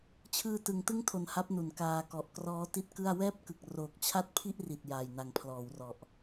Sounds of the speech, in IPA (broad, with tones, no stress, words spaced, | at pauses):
t͡ɕʰɯː˧tɯ˩˦ŋ tɯ˥˩ŋtʰo˨˩n ha˦˥p̚nu˩˦n kaː˧kɔ˨˩ʔ krɔː˦˥ti˥˩t̚kɯ˥˩a̯ wɛː˥˩p̚kɯ˨˩k̚ roː˨˩k̚t͡ɕʰa˥˩t̚pʰi˥˩ʔri˨˩t̚ jaː˨˩jna˨˩ŋpʰlɔː˩˦wrɔ˨˩ʔ